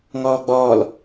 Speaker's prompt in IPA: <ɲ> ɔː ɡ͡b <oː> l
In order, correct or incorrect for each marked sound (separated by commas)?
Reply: incorrect, incorrect